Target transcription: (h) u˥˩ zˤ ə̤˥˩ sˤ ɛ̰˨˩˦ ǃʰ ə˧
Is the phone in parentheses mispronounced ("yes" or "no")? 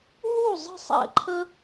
yes